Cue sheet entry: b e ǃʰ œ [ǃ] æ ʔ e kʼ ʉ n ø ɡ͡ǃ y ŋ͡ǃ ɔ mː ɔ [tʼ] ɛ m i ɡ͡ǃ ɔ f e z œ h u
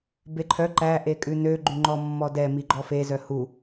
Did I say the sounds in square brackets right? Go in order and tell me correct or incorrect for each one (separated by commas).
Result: correct, incorrect